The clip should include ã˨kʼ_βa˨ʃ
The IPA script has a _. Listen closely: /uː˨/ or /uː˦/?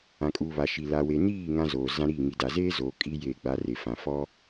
uː˨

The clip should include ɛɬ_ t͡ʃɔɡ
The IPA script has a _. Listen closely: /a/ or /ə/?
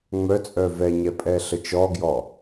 ə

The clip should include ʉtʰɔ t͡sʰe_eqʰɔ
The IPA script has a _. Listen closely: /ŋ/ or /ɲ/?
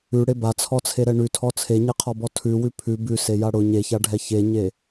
ɲ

